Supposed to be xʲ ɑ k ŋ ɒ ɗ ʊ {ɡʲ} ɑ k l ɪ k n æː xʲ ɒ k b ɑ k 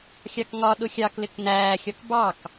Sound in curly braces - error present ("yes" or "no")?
yes